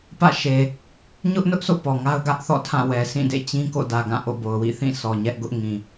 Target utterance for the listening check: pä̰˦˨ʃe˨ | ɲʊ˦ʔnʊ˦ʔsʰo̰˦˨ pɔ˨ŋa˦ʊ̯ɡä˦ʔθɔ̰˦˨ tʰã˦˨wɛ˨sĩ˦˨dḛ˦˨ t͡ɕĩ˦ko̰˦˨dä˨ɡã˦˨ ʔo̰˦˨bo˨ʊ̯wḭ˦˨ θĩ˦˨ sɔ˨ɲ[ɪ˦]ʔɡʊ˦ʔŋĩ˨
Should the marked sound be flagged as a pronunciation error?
yes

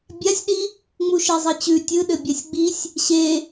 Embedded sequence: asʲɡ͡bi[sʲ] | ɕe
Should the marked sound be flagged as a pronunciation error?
no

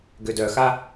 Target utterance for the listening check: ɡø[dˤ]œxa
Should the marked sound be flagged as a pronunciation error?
yes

